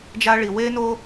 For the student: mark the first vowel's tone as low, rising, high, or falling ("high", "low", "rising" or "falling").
high